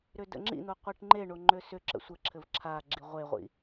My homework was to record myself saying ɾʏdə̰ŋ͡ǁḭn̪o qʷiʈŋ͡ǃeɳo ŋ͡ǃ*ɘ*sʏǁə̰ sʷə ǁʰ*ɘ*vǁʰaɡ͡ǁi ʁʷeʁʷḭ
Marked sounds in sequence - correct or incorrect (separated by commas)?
incorrect, correct